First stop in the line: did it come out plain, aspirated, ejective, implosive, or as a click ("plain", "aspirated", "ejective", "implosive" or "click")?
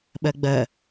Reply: implosive